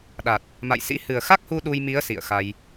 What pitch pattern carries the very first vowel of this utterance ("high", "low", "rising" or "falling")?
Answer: low